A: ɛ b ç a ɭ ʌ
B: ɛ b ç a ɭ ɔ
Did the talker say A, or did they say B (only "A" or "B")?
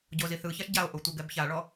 B